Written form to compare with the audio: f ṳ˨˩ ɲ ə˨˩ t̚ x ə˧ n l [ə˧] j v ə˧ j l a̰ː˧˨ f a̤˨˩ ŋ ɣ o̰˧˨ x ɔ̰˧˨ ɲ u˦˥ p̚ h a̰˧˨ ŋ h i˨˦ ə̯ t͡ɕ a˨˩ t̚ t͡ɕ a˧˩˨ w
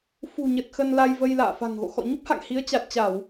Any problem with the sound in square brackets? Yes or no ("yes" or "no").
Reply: yes